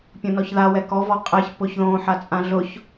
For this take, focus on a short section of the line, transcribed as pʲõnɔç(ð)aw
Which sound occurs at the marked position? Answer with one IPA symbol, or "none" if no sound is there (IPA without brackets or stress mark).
ð